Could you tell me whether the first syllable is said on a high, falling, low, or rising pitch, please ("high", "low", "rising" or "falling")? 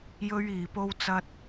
high